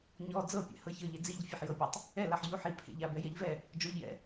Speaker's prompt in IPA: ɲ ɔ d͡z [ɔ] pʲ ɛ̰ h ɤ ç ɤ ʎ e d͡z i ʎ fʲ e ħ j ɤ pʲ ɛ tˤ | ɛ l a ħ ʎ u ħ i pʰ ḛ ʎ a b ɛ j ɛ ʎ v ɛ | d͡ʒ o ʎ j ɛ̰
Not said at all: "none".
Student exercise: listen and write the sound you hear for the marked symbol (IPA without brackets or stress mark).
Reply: ɤ